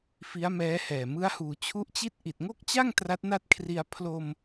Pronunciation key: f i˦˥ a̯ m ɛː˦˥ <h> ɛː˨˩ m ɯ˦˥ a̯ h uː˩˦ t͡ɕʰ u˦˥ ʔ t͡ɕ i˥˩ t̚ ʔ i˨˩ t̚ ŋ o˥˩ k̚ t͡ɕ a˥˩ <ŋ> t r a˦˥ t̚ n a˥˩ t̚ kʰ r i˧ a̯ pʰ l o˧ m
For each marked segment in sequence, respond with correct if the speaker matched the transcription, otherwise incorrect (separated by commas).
correct, correct